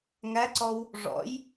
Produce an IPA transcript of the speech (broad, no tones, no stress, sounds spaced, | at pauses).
ŋ æ ǀ ɔ w | ʐ ɔ̰ j